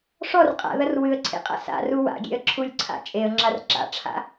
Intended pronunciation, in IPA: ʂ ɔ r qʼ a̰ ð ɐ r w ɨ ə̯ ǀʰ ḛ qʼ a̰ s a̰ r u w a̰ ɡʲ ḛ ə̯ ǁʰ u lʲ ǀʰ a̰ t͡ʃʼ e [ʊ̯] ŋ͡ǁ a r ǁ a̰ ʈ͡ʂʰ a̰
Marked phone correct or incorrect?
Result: incorrect: ə̯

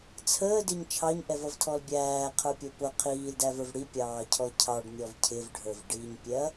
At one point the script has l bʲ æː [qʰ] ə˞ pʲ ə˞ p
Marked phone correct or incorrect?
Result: correct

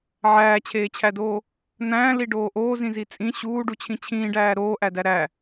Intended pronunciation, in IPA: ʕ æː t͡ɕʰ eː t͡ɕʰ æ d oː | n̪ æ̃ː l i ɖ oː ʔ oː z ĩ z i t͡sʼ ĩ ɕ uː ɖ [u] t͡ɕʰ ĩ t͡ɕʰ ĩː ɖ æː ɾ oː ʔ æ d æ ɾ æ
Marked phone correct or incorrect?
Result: correct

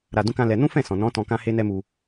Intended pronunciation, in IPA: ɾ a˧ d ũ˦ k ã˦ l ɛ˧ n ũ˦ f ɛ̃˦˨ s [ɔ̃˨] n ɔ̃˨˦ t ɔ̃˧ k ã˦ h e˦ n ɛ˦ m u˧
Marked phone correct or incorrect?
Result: correct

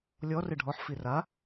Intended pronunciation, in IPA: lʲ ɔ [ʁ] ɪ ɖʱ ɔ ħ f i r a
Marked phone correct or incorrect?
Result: incorrect: r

